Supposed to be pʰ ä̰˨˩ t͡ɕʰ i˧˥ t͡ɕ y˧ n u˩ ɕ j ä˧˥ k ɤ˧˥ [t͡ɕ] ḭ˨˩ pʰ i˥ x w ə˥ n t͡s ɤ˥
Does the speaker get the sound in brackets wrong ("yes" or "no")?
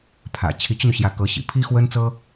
yes